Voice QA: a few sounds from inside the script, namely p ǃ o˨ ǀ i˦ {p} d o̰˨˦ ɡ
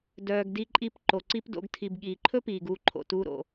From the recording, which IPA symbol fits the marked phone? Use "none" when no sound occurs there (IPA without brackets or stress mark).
p